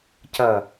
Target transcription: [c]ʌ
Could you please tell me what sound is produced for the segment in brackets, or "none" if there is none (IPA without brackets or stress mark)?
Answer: c